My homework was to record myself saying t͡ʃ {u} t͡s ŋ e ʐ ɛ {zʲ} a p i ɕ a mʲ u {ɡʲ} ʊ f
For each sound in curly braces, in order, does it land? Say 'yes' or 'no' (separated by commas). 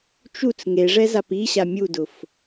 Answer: yes, no, no